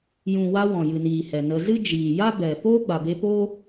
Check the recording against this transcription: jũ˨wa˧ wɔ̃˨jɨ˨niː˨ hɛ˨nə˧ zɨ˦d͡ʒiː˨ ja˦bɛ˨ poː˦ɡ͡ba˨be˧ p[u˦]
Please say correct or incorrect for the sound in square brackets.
incorrect